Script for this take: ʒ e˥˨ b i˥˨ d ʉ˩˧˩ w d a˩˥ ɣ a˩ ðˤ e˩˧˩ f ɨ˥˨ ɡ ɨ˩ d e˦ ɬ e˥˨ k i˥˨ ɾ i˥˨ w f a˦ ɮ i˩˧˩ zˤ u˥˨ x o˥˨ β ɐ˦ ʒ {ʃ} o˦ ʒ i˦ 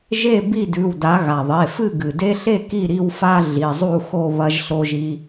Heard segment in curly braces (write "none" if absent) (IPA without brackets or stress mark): ɬ